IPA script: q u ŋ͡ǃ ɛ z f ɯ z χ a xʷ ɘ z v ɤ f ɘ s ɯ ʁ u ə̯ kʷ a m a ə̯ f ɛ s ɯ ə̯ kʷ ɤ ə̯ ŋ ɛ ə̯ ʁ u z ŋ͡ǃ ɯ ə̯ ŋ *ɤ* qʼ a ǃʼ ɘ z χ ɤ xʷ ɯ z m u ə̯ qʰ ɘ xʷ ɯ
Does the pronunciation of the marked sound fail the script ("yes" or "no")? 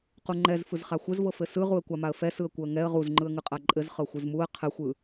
yes